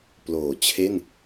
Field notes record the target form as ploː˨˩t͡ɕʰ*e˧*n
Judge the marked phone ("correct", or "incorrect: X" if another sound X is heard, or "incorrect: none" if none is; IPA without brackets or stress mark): incorrect: e˥˩